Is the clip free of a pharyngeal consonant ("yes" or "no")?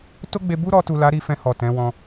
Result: yes